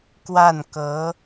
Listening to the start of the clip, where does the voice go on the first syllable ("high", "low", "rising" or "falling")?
falling